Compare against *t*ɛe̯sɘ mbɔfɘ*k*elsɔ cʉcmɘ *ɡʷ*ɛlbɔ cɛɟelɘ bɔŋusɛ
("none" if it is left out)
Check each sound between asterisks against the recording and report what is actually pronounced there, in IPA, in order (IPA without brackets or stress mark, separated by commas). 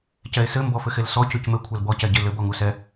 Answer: c, x, kʷʰ